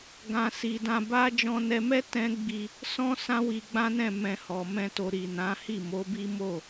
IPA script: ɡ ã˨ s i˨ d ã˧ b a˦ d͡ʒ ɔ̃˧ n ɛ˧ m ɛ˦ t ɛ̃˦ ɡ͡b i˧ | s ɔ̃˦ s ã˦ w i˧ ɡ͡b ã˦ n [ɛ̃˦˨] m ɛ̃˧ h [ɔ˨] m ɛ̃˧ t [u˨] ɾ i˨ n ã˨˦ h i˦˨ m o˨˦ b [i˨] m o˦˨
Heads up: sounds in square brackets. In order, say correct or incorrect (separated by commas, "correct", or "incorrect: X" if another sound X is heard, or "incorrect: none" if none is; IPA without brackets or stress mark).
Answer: correct, correct, incorrect: o˨, incorrect: i˦